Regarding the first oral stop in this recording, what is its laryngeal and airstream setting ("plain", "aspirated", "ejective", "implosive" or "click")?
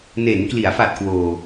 plain